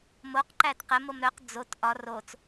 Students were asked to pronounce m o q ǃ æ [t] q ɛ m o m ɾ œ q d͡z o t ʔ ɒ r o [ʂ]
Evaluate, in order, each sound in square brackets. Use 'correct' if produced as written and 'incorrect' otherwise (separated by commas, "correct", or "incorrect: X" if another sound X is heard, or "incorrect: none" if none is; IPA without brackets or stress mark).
correct, incorrect: t͡s